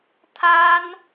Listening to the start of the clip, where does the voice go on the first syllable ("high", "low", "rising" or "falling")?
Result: high